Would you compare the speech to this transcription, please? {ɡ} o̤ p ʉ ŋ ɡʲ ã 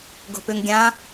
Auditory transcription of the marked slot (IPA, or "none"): ɡ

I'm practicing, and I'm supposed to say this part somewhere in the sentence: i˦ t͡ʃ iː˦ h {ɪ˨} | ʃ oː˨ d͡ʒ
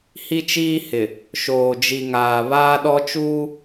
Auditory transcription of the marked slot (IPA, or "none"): ɪ˨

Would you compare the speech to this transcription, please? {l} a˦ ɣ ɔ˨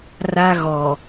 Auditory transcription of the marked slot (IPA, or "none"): r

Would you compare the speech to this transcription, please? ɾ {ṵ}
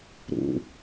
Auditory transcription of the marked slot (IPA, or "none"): ṵ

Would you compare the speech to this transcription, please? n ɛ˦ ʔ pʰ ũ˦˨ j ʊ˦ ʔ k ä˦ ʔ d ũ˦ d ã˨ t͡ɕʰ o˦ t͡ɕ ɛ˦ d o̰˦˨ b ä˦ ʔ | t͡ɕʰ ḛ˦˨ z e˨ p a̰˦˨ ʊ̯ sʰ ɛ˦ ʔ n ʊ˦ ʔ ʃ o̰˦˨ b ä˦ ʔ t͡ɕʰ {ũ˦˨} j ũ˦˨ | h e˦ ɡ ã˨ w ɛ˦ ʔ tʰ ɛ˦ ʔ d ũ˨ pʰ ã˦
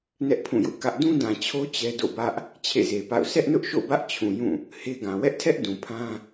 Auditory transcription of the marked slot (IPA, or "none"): ũ˨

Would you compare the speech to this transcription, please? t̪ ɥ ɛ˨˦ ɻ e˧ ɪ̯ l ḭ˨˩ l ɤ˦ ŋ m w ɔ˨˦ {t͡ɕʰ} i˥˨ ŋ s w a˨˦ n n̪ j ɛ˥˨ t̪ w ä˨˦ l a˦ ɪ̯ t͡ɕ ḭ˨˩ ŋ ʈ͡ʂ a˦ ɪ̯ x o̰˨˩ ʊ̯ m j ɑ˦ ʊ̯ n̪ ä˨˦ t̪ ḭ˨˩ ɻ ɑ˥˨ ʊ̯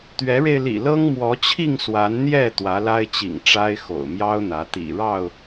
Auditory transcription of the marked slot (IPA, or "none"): t͡ɕʰ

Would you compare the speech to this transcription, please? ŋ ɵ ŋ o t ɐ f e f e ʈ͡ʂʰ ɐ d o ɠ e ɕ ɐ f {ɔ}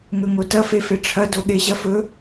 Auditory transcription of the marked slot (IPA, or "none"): ɵ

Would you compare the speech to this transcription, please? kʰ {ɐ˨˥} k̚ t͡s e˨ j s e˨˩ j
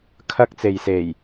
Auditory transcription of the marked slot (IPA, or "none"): ɐ˧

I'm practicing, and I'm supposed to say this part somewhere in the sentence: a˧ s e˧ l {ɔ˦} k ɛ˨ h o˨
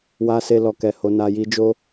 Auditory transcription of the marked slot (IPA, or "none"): ɔ˨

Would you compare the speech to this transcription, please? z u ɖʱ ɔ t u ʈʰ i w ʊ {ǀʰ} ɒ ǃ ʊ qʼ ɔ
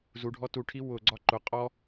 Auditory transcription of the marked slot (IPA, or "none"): ɡ͡ǀ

